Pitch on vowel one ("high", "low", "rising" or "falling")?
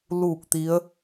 falling